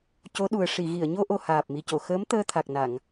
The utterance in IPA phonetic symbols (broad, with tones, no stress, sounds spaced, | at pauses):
c o˧˥ ɗ u˨˩ ə̯ ʂ i˨˩˨ ɣ i˨˩˨ ə̯ ɲ o˧ ʔ o˨˩ h aː˨˩ p̚ m i˨˩ c o˨˩˨ x əː˧˥ m t̪ əː˧ t̪ʰ a˨˩ k̚ n a˨˩˨ ŋ